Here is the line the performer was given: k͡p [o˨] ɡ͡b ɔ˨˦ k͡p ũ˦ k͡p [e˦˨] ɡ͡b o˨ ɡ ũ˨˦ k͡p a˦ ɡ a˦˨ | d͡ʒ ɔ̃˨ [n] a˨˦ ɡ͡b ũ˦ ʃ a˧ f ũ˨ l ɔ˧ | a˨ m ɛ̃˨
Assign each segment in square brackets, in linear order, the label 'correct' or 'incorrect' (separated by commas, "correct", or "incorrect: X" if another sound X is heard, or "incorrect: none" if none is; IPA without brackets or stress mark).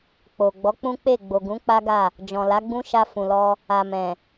correct, correct, incorrect: l